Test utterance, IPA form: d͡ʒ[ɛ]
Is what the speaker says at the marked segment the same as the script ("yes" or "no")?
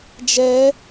yes